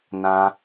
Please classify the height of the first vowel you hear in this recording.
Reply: low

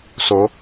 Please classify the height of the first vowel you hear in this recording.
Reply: mid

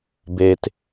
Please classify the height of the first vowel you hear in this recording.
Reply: mid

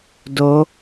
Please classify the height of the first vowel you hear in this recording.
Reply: mid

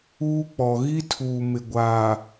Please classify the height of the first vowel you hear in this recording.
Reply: high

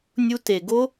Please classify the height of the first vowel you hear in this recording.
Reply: high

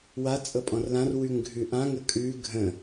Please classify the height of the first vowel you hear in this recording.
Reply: low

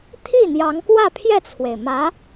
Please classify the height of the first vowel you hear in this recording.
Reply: high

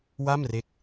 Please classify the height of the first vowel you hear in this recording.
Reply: low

